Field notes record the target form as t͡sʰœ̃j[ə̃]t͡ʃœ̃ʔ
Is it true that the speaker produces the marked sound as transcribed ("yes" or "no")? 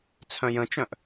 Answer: yes